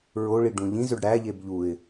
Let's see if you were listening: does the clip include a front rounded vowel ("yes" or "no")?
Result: yes